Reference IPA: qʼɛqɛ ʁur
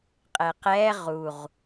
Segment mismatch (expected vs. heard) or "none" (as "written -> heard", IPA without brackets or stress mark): r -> ʁ